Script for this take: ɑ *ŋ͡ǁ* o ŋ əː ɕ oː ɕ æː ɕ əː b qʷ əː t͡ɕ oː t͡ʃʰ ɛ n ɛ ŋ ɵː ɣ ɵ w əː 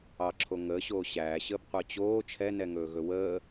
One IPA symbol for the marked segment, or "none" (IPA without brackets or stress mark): ǁʰ